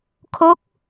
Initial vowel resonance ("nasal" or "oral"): oral